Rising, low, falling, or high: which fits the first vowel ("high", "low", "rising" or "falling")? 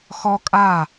high